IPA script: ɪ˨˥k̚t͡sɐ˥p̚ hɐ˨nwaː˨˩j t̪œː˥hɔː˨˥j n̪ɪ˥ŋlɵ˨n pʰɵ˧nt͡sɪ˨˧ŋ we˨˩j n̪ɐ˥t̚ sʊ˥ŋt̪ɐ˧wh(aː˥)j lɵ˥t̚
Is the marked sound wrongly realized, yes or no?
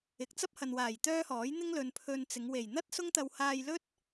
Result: yes